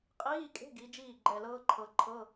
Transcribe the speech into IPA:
qʼ iː˧˥˧ kʼ e̤˧˥˧ ɡ i˨˦ d͡ʒ iː˥˩ ɡ͡ǃ ɛ˧˩ l ɤː˦˥ ǃʰ ɤ˨˦ ǃʰ ɤ˧˥˧

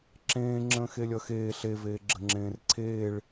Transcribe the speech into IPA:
ǁ ẽː ŋ͡ǁ ə̃ː x e lʲ ʌ x eː ɬ e v eː ɡ͡ǁ ə ŋ͡ǁ ẽː r ǀʰ eː ɭ

